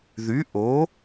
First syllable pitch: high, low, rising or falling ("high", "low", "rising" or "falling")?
rising